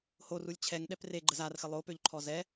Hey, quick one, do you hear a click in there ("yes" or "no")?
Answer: yes